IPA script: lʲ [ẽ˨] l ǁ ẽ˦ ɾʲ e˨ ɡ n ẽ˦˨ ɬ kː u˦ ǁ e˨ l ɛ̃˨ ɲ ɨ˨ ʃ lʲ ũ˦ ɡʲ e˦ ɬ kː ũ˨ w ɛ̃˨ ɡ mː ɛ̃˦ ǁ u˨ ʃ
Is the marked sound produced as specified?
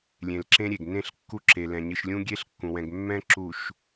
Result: yes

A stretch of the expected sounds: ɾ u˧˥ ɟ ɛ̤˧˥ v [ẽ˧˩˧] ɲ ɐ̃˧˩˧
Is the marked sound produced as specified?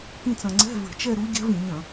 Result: no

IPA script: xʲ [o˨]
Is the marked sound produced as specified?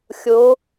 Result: no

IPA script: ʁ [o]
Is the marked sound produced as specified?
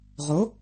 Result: yes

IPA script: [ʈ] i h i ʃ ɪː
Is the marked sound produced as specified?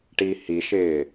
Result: yes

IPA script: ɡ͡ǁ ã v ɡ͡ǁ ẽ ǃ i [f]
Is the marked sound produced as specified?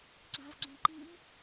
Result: no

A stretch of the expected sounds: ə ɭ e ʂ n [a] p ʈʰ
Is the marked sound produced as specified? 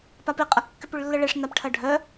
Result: yes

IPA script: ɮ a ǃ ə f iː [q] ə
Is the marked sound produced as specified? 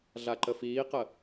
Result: yes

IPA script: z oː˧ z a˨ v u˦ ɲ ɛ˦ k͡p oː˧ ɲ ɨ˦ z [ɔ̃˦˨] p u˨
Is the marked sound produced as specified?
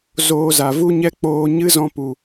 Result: no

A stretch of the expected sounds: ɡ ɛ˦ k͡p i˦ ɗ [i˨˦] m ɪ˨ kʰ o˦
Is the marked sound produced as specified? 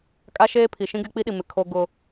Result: no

